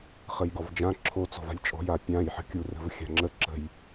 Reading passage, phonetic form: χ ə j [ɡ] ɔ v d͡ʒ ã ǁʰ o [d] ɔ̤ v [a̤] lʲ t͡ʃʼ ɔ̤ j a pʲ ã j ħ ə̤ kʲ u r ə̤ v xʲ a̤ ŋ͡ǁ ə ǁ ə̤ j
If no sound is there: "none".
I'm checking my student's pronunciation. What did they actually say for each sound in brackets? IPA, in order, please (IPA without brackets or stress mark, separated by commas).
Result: ɡ, t͡s, a̤